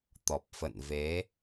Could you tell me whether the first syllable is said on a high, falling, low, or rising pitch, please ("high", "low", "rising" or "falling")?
low